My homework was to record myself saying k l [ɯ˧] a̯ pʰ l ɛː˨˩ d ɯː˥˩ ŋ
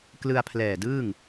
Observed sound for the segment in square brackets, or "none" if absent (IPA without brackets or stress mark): ɯ˧